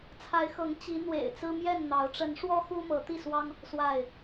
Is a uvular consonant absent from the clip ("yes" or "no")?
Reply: yes